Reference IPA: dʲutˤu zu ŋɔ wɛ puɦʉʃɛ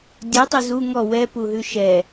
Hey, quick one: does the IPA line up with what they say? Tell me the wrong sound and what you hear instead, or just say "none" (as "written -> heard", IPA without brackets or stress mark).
none